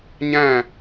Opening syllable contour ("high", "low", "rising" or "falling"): falling